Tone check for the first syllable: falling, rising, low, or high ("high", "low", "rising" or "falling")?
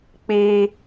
high